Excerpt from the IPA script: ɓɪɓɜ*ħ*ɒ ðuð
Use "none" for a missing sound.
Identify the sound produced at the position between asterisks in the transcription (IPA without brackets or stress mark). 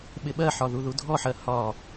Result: ħ